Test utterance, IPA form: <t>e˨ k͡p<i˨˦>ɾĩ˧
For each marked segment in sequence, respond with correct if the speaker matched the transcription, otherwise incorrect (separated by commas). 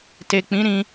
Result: correct, incorrect